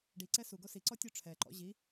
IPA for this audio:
ɖ i ǀ ɛ s u ɡ o s i ǀ ɔ tʲ o ʈ͡ʂʰ ɛ ǃ ɔ̰ ʑ i

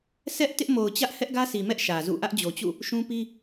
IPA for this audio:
sʰ ɛ˦ ʔ t ɪ˦ ʔ m o˨ ʊ̯ t͡ɕ ä˦ ʔ h ɛ˦ ʔ ɡ ä˦ s i˨ m ɛ˦ ʔ ʃ ä˨ z ṵ˦˨ ʔ ä˦ ʔ d͡ʑ o˨ t͡ɕ ṵ˦˨ | ʃ ũ˦ p i˦

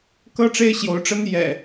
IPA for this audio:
k ɤ˦ ʈ͡ʂ e˦ ɪ̯ ɕ j o˨˦ ʊ̯ ʈ͡ʂ ə˦ n j ɛ̰˨˩

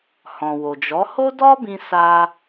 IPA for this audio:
h ɔ̃˨ w o˨ d͡ʒ ɔ˨˦ h o˦ d ɔ˦ b ĩ˧ s a˧

